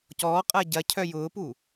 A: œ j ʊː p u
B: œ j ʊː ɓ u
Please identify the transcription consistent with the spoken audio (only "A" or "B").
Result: A